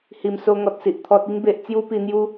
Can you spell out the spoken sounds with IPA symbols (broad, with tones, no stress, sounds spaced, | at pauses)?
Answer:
h i˨˩ m s o˧ ŋ ɔ˨ t̚ s i˨ ʔ t̪ʰ ɔ˨ t̚ i˧ ŋ b e˨ ʔ t͡s j u˧ p i˧ n̪ j u˦